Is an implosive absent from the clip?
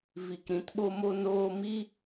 no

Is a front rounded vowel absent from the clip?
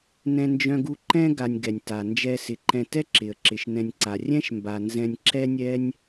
no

